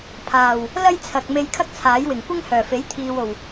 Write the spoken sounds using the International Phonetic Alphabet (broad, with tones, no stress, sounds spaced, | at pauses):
pʰ aː˨˩ w | l ɐ˥ j t͡sʰ ɐ˨ k̚ m e˧ j kʰ ɐ˥ k̚ t͡sʰ aː˨˥ j w ɪ˨˩ ŋ kʷ ɪ˥ ŋ h œː˨˩ f e˨˥ j t̪ʰ iː˨ w o˨˩ w